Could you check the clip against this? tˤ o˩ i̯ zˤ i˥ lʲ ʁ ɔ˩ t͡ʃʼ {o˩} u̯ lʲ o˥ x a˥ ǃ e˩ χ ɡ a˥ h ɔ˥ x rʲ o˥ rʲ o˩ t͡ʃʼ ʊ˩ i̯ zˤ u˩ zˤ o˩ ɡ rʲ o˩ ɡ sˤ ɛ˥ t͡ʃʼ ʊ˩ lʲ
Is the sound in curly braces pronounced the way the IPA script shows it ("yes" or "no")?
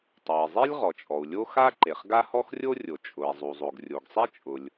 no